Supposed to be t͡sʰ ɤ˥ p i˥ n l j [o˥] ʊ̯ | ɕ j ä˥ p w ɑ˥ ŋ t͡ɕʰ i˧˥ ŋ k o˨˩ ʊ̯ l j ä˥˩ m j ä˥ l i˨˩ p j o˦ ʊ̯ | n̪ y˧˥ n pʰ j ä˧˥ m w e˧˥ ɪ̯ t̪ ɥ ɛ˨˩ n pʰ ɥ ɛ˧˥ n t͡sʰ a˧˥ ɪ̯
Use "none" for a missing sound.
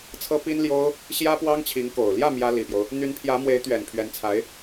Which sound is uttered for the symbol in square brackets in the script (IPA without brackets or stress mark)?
o˥